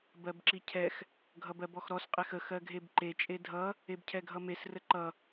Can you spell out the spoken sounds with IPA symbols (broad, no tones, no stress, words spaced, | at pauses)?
bɜbǁicʰɛx | ɡʱʌbɜbɔxɾɔs qʼexə xɜɡʱebǃe t͡ʃʼedʱʌ | ebcʰɛɡʱʌmes rəǃʌ